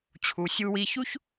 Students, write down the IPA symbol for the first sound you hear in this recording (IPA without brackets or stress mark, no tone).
t͡ɕʰ